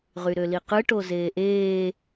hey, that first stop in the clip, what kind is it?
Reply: plain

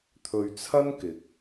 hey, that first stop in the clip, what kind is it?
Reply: aspirated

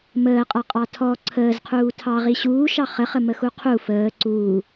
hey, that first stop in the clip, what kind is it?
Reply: ejective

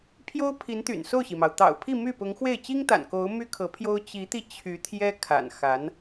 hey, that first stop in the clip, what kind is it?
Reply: aspirated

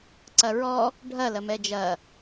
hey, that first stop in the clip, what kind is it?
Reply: click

